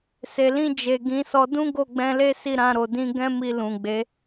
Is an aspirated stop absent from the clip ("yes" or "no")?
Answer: yes